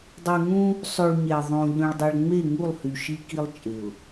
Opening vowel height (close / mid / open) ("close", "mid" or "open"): close